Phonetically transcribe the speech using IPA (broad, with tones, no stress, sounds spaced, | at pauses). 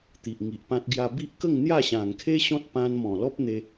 t̪ i˨ ʔ ŋ i˨ ʔ p ã˦ t̚ ɡ j a˦ b i˦ ʔ k ə˥˧ ŋ n̪ j a˥˧ ɕ ã˨˩ ŋ kʰ e˦ ɕ ɔ̃˦ t̚ p ã˧ n m ɔ̃˨˩ l ɔ˦ p̚ n̪ e˧